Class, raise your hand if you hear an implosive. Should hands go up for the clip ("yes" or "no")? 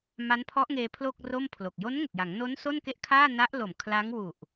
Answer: no